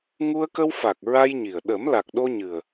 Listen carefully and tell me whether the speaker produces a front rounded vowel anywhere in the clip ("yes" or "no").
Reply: no